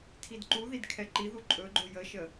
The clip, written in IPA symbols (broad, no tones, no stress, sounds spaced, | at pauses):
tʰ i d ǃ u ð i d kʰ ɛ ǃ i ð u ǃʼ ɵ ɡ͡ǃ o j ə ʃ ə